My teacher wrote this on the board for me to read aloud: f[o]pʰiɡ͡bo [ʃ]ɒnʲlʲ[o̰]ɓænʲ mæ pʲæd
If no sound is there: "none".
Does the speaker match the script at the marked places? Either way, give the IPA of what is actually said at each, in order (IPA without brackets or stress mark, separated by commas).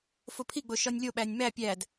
o, ʃ, o